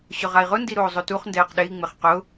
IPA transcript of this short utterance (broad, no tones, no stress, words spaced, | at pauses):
ɕʊʁai̯ʁʊ ndiɾoːzˤotuχ ndɛːqɗei̯ ŋ͡mɪχqʊ